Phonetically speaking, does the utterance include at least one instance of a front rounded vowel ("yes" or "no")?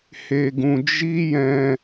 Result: no